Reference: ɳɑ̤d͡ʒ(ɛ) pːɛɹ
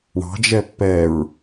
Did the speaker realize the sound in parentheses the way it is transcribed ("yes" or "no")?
yes